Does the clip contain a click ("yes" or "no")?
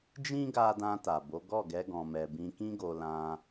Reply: no